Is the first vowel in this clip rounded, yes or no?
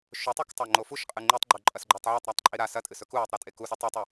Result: yes